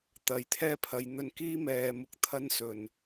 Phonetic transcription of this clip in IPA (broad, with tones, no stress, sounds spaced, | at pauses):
t̪ ɐ˨˧ j t̪ʰ ɛː˥ pʰ ɐ˨˧ j n̪ ɵ˧ n k iː˥ m ɛː˨ m ʊ˨ k̚ t̪ʰ ɐ˥ n s ɵ˨˩ n